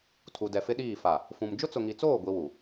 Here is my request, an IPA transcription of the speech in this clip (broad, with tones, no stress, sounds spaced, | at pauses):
tʰ u˨ d ɛ˨ f ɪ˦ ɗ iː˦˨ f a˨ | f ũ˨ m d͡ʒ ʊ˦ t͡s ʊ˨ ŋ i˨ t͡s oː˦˨ ɡʷ i˦ w u˨